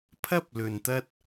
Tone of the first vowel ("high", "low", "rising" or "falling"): high